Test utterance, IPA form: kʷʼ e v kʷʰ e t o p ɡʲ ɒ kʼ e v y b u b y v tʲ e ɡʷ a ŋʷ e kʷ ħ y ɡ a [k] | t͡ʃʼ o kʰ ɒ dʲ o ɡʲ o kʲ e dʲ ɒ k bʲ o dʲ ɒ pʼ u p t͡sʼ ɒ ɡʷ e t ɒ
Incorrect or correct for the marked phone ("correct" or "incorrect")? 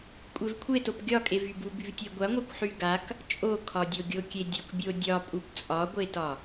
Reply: correct